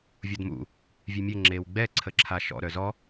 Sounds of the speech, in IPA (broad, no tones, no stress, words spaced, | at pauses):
vʲɔdmṵ | vʲɛmʲɘ ŋ͡ǁewɡ͡bɛ ǀʰəǁʰaʃɔ̰ ɾœzɔ